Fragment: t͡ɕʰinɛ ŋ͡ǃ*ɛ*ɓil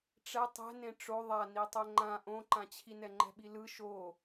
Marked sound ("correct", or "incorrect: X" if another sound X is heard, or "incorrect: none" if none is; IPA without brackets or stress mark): incorrect: ɛ̤